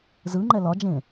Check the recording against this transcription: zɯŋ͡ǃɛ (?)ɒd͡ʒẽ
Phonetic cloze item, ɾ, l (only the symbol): l